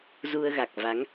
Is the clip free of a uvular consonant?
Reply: yes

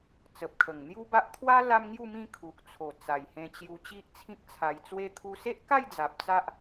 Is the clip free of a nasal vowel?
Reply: no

